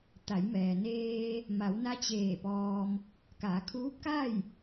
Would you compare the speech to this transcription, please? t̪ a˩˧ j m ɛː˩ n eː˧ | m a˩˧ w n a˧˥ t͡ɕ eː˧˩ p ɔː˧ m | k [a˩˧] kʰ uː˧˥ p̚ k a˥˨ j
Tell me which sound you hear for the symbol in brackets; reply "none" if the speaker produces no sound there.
a˩˧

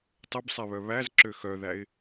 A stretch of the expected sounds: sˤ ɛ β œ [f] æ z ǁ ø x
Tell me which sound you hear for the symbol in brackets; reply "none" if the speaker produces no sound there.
β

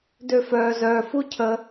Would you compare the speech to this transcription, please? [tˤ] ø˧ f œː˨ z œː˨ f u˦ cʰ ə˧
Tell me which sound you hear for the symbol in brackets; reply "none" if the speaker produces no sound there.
d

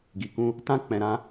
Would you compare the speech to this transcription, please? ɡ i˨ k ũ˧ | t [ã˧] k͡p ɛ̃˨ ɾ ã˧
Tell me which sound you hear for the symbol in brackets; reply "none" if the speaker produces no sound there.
ã˧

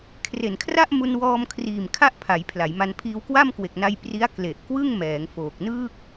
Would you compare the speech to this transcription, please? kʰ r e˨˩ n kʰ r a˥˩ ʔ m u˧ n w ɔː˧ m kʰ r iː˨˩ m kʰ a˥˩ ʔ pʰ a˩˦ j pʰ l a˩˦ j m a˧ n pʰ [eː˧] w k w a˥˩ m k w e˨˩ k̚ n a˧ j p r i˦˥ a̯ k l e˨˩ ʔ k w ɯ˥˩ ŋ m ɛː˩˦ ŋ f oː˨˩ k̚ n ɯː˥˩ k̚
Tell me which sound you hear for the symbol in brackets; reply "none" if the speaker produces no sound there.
iː˧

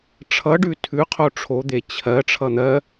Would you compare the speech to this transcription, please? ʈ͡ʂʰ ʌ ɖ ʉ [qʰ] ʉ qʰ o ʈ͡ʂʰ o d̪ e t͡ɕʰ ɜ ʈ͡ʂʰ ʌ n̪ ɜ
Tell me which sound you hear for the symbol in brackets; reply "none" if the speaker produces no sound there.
tʰ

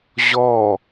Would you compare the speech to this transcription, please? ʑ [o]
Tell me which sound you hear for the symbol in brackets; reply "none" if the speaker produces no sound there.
ɔ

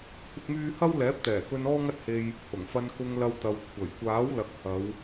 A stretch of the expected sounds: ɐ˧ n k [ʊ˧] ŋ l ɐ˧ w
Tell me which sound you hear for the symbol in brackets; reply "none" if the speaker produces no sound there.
ʊ˧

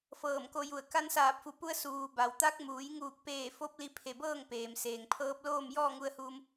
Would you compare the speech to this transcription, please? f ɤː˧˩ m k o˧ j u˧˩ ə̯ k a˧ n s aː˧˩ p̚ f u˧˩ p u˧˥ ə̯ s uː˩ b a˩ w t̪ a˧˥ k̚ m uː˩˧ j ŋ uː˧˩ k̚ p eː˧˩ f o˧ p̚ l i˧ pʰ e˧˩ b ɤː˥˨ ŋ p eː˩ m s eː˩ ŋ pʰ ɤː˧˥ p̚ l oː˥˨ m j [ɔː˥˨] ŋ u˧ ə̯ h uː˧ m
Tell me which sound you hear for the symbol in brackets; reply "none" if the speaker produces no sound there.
ɔː˥˨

